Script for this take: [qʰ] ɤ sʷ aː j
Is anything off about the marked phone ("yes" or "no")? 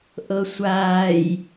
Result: yes